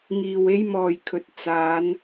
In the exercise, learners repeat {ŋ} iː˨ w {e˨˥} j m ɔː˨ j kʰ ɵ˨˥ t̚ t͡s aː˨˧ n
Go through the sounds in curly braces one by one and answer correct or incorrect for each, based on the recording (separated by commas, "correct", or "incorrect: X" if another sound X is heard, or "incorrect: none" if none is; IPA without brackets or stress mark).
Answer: correct, incorrect: e˥